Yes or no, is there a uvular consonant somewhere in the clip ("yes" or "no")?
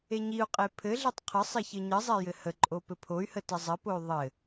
yes